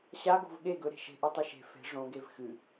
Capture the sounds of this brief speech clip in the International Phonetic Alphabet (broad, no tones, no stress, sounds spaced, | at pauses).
ɕ a ɡ o̤ v ɠ e ɡ ɵ ɾ e̤ ʃ e̤ ʔ u tˤ ɨ ʃ e̤ f e̤ ʐ õ ɡ e v x ɨ